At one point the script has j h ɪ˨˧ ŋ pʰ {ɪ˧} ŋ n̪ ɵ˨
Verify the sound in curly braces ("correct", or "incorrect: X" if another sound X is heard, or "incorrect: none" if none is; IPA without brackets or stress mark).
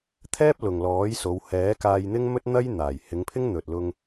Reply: incorrect: ɪ˥